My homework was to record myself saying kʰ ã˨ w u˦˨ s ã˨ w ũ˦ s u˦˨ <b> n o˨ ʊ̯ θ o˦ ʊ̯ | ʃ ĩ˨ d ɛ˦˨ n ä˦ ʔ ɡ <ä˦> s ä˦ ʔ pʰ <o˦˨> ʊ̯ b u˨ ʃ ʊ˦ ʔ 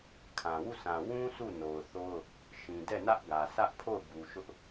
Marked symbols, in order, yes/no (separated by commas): no, no, yes